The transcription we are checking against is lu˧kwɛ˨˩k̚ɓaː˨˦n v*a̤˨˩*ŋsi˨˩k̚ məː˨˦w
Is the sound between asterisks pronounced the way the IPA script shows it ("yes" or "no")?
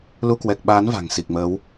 yes